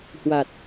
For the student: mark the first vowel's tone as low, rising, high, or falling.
low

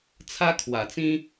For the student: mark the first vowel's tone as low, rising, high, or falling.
high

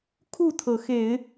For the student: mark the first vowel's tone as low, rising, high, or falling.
falling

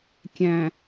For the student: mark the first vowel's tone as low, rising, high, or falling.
low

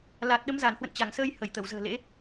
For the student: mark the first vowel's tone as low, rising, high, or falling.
low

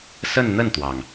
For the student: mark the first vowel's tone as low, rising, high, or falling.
falling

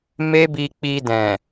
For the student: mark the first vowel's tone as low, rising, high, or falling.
high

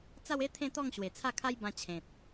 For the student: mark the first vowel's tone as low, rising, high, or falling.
falling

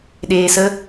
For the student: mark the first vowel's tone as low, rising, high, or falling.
low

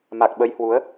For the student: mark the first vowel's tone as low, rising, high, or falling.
low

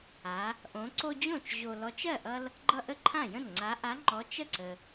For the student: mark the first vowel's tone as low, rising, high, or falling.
rising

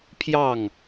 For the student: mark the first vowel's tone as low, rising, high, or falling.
falling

